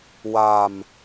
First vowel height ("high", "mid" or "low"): low